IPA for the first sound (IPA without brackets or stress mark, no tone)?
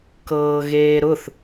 k